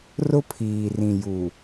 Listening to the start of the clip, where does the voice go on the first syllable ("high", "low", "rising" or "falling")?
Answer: high